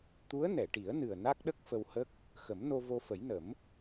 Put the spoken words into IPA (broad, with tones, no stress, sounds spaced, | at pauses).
t̪ u˧˥ ə̯ n ɛ˨˩˨ ʈ i˨˩˦ ə̯ n ɨ˨˩ ə̯ n a˦˥ k̚ ɗ ə˦˥ k̚ f ə˧ w h ə˦˥ k̚ | x ə˨˩˦ m n o˧ v o˧ f ə˨˩˦ j n ə˨˩˦ m